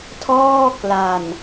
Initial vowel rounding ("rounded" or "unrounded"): rounded